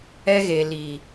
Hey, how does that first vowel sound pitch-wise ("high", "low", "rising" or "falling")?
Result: high